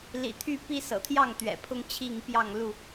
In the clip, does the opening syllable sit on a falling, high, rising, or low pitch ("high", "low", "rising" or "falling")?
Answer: low